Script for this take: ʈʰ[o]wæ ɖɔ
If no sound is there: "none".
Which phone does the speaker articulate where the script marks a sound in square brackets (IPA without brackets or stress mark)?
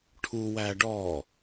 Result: u